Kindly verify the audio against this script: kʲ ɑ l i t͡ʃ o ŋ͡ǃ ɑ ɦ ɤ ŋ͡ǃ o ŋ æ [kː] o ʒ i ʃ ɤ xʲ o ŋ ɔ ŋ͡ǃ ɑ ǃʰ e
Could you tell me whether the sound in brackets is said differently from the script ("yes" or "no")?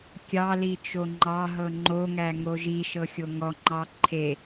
yes